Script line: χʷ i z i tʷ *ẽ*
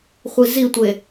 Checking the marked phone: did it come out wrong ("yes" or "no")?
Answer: yes